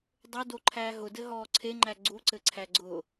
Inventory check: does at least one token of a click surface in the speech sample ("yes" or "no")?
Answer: yes